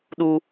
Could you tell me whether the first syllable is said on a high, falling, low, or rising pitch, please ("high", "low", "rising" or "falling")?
high